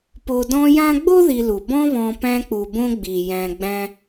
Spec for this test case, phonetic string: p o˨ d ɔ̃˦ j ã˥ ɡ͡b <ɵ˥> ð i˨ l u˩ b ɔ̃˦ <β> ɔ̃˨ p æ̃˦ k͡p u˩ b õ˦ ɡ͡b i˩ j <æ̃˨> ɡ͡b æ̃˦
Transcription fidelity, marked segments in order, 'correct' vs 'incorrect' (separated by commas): incorrect, correct, correct